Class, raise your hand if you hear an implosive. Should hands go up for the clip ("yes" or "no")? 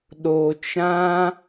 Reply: yes